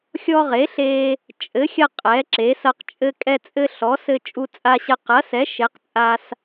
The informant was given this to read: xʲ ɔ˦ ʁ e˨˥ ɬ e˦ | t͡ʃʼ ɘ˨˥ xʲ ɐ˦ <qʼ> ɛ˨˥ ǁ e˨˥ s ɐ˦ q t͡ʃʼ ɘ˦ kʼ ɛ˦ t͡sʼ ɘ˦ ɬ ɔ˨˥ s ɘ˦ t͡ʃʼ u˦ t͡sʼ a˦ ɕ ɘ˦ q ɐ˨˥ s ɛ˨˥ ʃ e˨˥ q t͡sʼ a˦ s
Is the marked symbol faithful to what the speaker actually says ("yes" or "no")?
yes